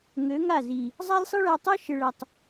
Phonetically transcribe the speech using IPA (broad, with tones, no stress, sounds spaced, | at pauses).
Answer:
ŋ ø˨˦ ŋ a˦˨ z i˨ | zˤ a˦ lʲ sˤ i˦ ɭ a˧ tˤ ø˦ ʃ ɪ˨ ɭ ɐ˨ tˤ